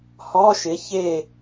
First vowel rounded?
yes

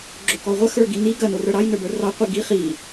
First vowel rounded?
yes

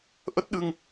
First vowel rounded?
no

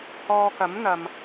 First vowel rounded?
yes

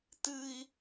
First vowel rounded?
no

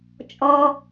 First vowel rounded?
yes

